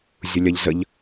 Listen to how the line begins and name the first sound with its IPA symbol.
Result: zʲ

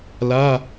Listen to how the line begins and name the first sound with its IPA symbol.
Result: l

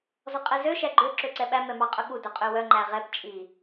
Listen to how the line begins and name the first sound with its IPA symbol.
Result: z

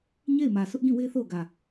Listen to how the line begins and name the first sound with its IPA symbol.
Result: ɲ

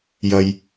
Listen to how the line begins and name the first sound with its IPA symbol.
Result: j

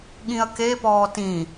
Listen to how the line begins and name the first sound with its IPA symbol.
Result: ɠ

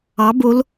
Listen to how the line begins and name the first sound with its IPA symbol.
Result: ɑ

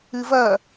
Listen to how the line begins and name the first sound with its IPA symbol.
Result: ɨ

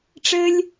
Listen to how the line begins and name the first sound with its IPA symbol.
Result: ʈ͡ʂ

